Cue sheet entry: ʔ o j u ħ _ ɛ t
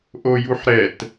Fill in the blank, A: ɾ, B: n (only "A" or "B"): A